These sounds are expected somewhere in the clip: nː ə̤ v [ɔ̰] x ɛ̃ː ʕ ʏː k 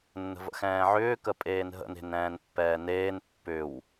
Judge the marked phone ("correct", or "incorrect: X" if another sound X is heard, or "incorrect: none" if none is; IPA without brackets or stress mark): incorrect: ə̰